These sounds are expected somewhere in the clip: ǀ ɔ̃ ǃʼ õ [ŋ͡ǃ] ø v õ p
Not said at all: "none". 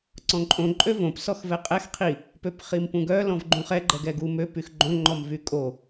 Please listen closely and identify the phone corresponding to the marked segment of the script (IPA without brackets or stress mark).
ǃʼ